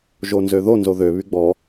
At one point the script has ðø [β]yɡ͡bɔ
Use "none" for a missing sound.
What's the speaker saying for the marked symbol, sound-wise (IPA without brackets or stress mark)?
β